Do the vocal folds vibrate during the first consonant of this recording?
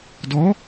yes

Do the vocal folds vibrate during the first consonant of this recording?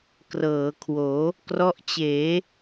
no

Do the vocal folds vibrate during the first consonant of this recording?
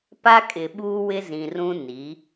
no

